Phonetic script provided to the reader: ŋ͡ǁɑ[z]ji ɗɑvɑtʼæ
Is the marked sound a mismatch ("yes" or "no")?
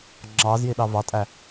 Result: no